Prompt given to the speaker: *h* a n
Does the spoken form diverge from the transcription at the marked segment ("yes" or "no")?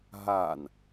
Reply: yes